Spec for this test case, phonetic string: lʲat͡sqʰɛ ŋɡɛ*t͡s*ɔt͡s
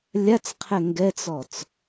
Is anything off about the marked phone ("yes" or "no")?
no